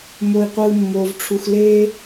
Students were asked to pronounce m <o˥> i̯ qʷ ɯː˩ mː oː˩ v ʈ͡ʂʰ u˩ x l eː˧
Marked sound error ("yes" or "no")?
yes